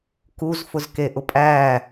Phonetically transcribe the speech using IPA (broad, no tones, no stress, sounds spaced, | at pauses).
k u z f ʊ z k e ʔ ʊ pʼ æ